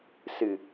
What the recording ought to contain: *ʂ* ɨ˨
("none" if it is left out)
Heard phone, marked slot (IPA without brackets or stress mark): s